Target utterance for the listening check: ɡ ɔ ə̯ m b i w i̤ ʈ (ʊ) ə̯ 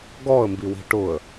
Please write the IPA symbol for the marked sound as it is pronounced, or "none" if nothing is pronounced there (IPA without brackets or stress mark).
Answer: ʊ